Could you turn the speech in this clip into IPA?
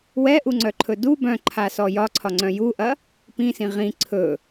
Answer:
wɛʔuŋ͡ǀœǃʰɵ du bœ̃ǃʰasɔ jɒǀʰɒŋ͡ǀœ̃ juʔɐ | pĩsĩ ʁĩ ǀʰɵ

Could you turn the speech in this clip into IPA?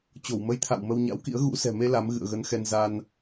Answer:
t͡ɕo˧˩wmə˨˦jt̪ʰa̰˧˨w mə˧wɲa̰˧˥wkḭ˧˥ə̯ ɣṵ˧˥ sɛ̤˨˩me˧ la˨˦m ɣɨ̰˧˨ə̯ɣə˨˦nxɛ˧n za˧n

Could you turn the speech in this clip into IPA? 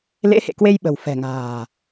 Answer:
lḛ˧˥hḛ˧˨kwe˧j ɓə̤˨˩w fɛ̤˨˩ŋa̤ː˨˩

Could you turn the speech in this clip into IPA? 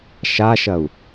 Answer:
ʃaʃɐu̯

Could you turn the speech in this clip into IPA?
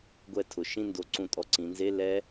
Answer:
ɡʷɛ˦˨tʰʊ˩˧ ʃĩ˦˨ndo˩˧ǀũ˨˩tʼɔ˨˩ ǀĩ˩˧nze˧˥˧ lɛ˦˥

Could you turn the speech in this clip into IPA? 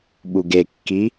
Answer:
ɓuɡekːi

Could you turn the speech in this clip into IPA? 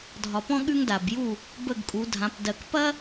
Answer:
dʱɒ˨pɔ̃˥ ɠʉ˥ŋda˨bju˥˨ | bə˥˨ɡkʼu˨˦dʱã˨˦p dɜ˨kpɐ˥

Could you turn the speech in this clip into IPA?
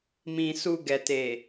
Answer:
mĩ˨su˨ ɡɛ˨te˨

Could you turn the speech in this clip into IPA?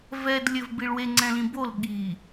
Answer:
vɛd lʲɘv biɭwe ŋ͡ǀɛ̃lĩbol ɠi

